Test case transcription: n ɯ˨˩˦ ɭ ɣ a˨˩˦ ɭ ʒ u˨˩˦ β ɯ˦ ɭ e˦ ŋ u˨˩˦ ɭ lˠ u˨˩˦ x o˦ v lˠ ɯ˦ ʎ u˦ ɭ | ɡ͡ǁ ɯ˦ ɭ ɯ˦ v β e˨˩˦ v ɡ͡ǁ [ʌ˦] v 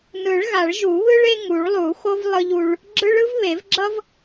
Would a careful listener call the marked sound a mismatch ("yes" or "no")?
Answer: no